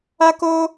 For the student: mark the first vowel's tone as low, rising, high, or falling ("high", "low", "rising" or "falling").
high